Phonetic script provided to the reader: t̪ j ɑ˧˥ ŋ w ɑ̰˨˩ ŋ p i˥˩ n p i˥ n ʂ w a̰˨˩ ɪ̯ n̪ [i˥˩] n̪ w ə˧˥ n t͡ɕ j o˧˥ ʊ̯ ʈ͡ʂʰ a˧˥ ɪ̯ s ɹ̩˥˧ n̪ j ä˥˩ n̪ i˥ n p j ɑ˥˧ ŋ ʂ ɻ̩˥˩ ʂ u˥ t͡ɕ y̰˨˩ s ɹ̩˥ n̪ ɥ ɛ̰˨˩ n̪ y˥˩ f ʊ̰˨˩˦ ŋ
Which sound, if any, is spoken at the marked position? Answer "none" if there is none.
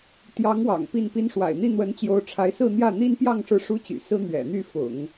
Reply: i˥˩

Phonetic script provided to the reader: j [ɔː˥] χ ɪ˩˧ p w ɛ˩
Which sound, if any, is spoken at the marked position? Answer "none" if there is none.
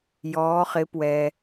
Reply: ɔː˩˧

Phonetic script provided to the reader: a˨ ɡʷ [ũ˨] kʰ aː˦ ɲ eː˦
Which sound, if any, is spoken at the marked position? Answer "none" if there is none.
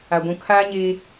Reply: ũ˨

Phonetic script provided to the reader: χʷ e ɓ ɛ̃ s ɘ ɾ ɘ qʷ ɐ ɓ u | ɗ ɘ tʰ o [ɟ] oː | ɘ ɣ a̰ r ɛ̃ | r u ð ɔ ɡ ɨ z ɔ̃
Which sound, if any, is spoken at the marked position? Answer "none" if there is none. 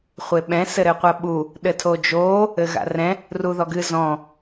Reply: d͡ʒ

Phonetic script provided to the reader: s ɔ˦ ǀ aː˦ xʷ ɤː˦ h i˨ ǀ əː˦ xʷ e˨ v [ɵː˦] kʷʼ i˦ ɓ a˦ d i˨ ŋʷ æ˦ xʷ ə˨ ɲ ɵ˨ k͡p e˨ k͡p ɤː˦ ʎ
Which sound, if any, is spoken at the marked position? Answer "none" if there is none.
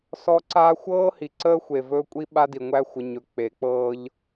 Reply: ɵː˦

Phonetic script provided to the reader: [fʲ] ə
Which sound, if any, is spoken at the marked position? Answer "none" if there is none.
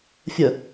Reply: fʲ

